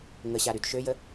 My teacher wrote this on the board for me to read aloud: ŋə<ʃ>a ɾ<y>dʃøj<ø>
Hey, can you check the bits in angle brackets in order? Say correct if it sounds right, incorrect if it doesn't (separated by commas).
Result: incorrect, correct, incorrect